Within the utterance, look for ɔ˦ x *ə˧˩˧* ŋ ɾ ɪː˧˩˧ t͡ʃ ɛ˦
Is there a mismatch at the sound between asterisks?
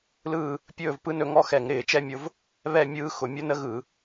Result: yes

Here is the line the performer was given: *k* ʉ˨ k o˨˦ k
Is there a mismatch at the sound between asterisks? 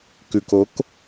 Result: no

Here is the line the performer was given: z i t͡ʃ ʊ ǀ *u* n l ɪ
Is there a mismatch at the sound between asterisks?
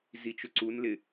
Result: no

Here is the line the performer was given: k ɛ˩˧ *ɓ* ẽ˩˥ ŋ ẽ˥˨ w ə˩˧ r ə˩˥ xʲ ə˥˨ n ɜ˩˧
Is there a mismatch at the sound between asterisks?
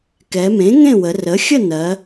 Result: yes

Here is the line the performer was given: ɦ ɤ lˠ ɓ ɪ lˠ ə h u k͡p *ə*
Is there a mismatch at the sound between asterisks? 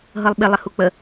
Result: no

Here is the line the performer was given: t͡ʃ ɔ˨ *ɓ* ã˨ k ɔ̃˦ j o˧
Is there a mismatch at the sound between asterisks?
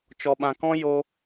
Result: no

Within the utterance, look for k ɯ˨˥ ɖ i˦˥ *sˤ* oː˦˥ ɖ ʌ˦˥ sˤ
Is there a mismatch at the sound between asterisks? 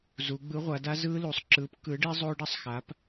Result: yes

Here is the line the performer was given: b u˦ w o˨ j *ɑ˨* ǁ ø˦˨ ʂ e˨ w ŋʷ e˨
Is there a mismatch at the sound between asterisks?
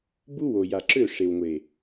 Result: yes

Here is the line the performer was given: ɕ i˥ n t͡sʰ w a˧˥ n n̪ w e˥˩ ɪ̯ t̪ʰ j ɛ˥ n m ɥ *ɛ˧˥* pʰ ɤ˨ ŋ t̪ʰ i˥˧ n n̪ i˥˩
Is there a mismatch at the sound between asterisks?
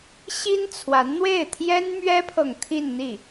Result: yes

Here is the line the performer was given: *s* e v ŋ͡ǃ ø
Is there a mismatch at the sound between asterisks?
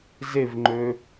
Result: yes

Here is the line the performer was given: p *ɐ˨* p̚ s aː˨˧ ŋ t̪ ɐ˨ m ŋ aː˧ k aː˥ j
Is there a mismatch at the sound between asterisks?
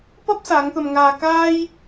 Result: yes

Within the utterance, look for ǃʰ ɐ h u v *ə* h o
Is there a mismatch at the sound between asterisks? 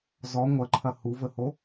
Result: no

